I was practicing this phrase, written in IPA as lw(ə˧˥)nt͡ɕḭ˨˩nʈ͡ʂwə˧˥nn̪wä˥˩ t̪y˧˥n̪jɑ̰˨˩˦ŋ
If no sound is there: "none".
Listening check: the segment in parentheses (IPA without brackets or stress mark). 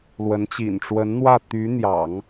ə˧˥